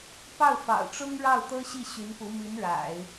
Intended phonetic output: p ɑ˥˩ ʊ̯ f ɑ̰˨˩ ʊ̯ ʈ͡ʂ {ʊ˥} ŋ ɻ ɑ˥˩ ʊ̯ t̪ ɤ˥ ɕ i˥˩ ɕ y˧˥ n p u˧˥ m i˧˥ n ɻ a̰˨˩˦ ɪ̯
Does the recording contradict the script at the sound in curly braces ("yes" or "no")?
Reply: no